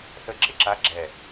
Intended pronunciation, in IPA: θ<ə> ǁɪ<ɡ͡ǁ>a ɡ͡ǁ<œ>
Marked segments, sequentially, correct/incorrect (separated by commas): correct, incorrect, incorrect